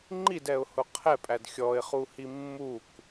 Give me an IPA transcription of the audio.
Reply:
ŋ͡ǃ i d ɛ ʊ̯ h ʊ qʰ ɛ pʼ æ d xʲ ɔ ɪ̯ χ u h i mː u k

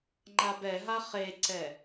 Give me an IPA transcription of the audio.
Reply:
ŋ͡ǃ a b ɛ ɦ a χ e ǀ ɛ

